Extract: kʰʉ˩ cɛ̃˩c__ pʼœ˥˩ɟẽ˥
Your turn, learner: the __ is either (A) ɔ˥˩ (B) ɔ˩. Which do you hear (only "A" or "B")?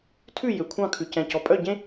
B